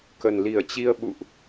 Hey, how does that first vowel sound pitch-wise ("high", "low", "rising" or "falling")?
low